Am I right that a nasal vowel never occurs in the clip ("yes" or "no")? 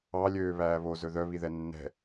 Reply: yes